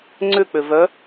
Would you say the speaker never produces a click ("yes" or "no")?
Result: no